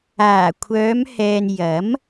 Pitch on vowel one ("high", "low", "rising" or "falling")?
low